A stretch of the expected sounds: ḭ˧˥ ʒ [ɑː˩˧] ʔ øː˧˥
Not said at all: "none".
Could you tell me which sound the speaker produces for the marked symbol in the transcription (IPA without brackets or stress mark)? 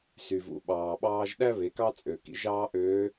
ɑː˥